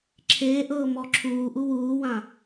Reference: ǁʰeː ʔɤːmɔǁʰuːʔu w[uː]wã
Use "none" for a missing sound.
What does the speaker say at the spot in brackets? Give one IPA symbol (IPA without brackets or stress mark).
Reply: uː